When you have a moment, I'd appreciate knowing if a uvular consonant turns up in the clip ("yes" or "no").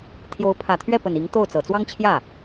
no